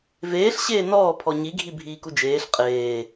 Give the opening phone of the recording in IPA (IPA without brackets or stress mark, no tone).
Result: v